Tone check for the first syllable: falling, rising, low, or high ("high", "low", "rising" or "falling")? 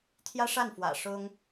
high